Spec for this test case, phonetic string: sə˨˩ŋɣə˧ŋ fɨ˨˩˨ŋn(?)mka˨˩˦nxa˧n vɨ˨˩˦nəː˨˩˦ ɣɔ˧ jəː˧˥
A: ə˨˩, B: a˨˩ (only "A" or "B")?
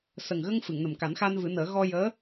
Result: A